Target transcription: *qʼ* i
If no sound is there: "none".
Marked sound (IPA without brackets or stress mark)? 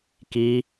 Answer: k